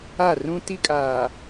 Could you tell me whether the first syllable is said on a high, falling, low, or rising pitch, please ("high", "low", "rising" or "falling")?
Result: falling